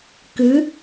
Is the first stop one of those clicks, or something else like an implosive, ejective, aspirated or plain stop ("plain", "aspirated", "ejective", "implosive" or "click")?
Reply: plain